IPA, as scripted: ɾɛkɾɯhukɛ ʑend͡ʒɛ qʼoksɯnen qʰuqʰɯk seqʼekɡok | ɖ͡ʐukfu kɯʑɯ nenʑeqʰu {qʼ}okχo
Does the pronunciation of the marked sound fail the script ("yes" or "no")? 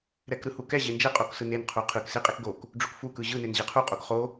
no